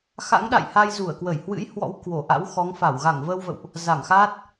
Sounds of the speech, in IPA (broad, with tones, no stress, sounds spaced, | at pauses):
x a̰˧˥ ŋ ɗ a̰˧˨ j h a˧ j z u˧˩ ə̯ k w ə˧˩ j h w ɨ̰˧˥ j h w ɔ̰˧˥ w k w o˧˩ ʔ a̰˧˥ w x ɔ˨˦ ŋ f a˧˩ w ɣ a˧˩ ŋ v əː˧ w v ə̰˧˨ w ʔ | z a˧˩ ŋ x aː˦˥ t̚